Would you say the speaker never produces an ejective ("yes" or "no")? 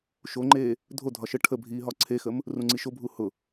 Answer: yes